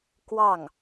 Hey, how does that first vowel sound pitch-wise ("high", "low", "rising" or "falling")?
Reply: falling